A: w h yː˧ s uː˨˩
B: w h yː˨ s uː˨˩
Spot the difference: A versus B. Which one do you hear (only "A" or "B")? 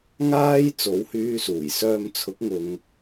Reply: A